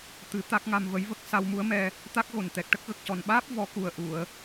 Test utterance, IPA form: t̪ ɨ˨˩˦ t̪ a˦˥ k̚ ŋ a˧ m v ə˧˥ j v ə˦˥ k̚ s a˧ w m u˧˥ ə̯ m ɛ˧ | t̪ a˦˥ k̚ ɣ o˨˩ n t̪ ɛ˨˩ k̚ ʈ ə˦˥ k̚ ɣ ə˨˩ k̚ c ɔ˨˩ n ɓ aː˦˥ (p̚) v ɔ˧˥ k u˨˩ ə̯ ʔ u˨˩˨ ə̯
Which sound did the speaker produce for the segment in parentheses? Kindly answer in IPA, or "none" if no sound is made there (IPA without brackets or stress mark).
p̚